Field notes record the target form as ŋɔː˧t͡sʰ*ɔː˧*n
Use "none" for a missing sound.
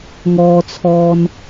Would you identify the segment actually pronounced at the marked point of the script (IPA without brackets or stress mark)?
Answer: ɔː˧